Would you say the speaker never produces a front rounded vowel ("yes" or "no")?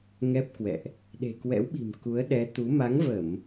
yes